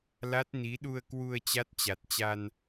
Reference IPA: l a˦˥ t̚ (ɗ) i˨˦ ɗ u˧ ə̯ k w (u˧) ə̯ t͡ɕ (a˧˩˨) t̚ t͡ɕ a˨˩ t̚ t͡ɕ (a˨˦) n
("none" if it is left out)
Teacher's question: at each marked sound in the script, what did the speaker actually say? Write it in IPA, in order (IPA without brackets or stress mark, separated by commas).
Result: n, u˧, a˦˥, a˧